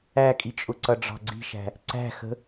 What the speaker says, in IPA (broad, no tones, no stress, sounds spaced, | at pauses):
æ kʼ i t͡ʃʼ ʊ ǀ ʌ ɖ͡ʐ ɑ̤ ɡ͡ǀ i̤ ʃ æ̤ | ǀ æ̤ x ə̤